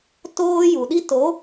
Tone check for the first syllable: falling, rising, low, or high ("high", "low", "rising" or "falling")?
high